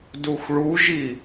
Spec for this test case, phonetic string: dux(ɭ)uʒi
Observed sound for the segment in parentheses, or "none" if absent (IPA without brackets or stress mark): ɭ